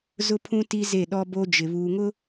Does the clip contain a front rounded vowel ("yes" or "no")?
no